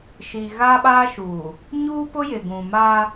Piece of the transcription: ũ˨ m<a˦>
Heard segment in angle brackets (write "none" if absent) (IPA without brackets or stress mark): aː˦